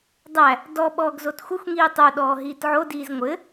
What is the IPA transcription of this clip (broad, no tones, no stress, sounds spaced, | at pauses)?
dˤ æ | d ɔ ɓ ɔː ɡ z o t xʷ ɘ xʷ ŋ iː tˤ o ɗ ɔː ɦ iː t ʕ o d iː z ŋʷ ɘ